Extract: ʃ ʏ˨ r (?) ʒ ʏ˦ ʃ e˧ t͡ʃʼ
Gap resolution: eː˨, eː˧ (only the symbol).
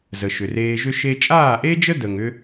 eː˧